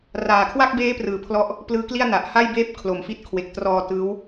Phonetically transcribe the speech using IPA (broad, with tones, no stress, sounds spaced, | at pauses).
r aː˨˩ kʰ w a˥˩ k̚ b eː˦˥ p r ɯː˩˦ pʰ l ɔ˦˥ ʔ | p l ɯː˦˥ k l i˥˩ a̯ n a˨˩ ʔ h a˥˩ j b eː˥˩ p̚ kʰ l o˨˩ m f i˦˥ t̚ kʰ w e˨˩ k̚ t r ɔː˧ t ɯː˦˥ w